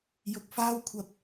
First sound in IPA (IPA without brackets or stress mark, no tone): j